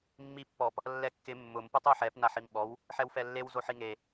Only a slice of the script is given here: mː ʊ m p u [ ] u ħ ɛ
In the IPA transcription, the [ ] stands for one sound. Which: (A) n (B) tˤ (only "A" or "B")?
B